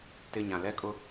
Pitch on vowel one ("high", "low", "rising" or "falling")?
low